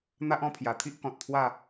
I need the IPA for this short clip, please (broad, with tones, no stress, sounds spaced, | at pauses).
n̪ a˦ ʔ ɔ̃˧ pʰ j a˨˩ t̪ʰ i˦ ʔ k ɔ̃˨ t̚ t̪ʰ w a˥˧